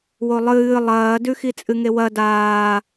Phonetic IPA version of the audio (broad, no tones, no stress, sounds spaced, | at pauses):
w o lˠ ɨː lˠ ɐː d ʉ x i t͡sʼ ɨ ŋ e w ɐ d aː